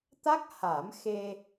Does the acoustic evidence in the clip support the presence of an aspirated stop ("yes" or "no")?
no